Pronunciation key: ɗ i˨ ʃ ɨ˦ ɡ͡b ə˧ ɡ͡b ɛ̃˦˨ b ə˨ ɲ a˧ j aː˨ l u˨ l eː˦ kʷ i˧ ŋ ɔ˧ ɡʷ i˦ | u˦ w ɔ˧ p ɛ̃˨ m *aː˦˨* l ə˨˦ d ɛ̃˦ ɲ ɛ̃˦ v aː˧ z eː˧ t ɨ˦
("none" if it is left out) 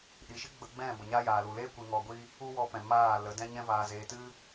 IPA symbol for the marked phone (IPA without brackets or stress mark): aː˦˨